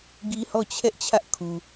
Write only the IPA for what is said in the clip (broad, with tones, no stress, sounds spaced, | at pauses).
ɡ i˦ h ɔ˦˨ t͡ɕʰ ɛ˦ ʔ t͡ɕʰ ä˦ ʔ kʰ u˨